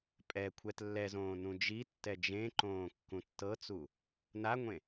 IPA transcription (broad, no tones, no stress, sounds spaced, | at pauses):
pʼ ɛ kʷʰ ɛ t lː ɛ z õː n ũ d͡ʒ i tː ɛ d͡ʒ ẽ ǃ õː kː ũ tː ɤ t͡s u | n a ŋʷ ẽ